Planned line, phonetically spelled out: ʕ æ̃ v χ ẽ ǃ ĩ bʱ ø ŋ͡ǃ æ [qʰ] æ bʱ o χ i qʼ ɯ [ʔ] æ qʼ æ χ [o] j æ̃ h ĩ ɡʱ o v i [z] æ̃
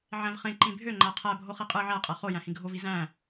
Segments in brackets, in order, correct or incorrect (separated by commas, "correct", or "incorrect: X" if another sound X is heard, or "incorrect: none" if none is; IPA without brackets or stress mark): correct, incorrect: ʕ, correct, correct